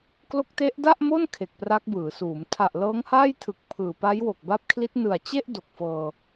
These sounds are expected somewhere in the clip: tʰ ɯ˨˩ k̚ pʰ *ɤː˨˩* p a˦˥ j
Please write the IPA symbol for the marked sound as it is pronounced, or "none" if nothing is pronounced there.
ɯː˨˩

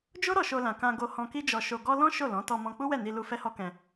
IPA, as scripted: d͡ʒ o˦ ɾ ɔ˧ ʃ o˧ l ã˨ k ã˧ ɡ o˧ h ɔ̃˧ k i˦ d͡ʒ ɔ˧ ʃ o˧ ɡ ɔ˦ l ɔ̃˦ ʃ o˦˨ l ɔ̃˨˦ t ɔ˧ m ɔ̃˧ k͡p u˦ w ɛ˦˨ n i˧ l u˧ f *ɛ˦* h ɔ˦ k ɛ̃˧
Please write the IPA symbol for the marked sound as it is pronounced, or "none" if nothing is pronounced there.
ɛ˦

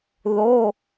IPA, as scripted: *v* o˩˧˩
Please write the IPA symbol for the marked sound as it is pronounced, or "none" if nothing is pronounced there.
ð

